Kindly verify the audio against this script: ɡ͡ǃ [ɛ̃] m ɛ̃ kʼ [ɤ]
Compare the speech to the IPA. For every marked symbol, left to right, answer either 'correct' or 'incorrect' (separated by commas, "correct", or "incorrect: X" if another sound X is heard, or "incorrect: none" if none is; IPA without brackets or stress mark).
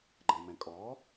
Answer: correct, incorrect: ɔ